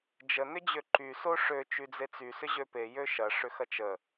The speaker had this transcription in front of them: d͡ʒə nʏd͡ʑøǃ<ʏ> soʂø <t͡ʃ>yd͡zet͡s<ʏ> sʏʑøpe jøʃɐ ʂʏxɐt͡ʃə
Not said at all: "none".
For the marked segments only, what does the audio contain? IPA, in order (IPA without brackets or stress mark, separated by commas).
y, t͡ʃ, y